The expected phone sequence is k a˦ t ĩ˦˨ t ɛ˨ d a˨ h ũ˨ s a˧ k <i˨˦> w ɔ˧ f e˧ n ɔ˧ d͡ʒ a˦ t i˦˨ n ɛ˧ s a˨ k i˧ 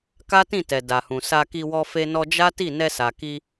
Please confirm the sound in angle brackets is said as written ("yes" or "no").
no